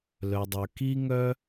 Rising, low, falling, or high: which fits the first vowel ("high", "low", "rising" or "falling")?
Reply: low